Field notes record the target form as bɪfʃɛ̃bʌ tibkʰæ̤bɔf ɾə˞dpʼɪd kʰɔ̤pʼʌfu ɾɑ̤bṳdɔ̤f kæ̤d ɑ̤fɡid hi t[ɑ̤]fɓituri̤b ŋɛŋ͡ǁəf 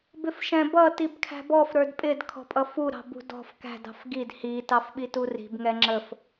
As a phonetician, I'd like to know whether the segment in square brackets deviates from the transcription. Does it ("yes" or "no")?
yes